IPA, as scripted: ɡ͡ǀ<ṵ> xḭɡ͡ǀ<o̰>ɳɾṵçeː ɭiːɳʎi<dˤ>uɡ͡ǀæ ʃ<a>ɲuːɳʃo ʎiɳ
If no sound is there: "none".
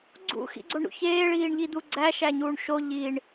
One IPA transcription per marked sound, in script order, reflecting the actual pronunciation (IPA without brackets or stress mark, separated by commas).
ṵ, o, d̪, æ